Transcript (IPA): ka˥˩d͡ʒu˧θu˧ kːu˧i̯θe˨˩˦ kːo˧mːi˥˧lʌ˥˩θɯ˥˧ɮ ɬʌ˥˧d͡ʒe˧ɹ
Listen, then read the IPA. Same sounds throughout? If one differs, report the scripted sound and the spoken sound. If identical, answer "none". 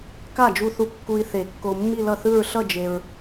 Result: ɮ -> ɹ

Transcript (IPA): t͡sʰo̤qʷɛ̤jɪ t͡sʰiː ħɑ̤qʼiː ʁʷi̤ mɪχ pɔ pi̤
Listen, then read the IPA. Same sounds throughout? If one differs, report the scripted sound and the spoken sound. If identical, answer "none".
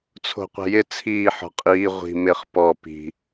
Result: ɑ̤ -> ɔ̤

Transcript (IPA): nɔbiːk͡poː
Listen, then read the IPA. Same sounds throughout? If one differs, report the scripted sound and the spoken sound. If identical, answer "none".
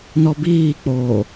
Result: none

